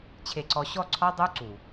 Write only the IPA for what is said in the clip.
t͡ɕʰe˨ǀɔ˨ɕɔ˦˨ ǀʰɔ˦ dˤu˦ ǀu˨

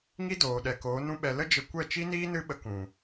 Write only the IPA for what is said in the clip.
ŋi˦doː˨ ɗɛ˨koː˨˦nũ˦ɓɛ˧ lə˦d͡ʒə˧ kʷɛ˦˨t͡ʃi˦niː˦ nɨ˦ɓə˧kũ˨

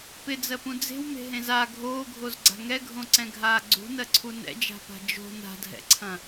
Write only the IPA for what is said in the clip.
pɪd͡zɜpũ d͡ze̤wme̤ɦẽz a ɡʱoːɡʱozɡ͡ǀa̤ ŋɛɡʱõǀɛ̃ɡʱaː ɡ͡ǀṳnɜǀʰu nɛ̰d͡ʒa̤pa̤ d͡ʒo̤ na̤dʱɛ̰ǀʰɐ̃

